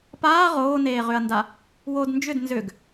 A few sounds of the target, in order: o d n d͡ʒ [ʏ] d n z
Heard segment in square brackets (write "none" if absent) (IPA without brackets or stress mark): ʏ